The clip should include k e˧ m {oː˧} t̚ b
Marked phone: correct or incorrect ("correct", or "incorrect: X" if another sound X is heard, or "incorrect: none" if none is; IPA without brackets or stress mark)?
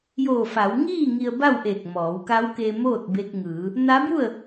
incorrect: oː˥˨